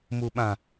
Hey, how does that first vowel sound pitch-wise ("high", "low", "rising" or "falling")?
low